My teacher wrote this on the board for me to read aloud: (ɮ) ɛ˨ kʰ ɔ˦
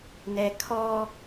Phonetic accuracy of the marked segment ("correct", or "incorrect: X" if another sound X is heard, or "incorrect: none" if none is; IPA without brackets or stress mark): incorrect: n